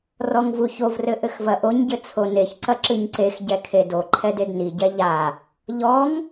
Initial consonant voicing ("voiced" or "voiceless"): voiced